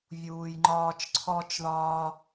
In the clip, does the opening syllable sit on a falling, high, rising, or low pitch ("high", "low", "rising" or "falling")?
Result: low